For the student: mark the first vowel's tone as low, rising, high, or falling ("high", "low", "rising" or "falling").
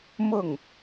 falling